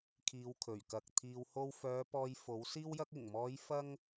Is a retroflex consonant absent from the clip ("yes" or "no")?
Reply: yes